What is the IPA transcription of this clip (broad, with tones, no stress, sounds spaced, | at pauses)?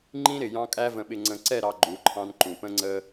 ŋ͡ǃ ĩ˦ ɾ ɪ˨ j ɑ̃˦ kʼ æ˦ v ə̃˨ ɓ ɪ˨ ŋ͡ǀ ə̃˨ ǀ ɛ˦˨ ɾ ɑ˨ ɡ͡ǃ u˨˦ ǃʰ ɑ̃˦ n ǃ ũ˨ p ə̃˦ ŋ͡ǀ ə˦